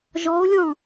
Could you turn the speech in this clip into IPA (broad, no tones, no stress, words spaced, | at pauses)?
ʒɔo̯lʲɔ̃